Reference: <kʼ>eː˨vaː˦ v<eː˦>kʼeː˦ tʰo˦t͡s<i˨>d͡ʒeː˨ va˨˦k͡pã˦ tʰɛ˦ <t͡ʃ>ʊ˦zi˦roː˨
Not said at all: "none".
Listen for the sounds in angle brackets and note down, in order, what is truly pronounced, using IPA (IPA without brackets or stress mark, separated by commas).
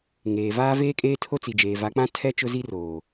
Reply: ŋ, eː˦, i˨, t͡ʃ